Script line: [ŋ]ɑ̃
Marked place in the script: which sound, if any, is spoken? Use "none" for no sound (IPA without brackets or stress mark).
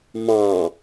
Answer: m